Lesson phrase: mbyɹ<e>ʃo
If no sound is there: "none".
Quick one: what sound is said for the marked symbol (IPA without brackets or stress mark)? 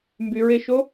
e